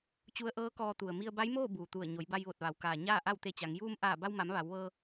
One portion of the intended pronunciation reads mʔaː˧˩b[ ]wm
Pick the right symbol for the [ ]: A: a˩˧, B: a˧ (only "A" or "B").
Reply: B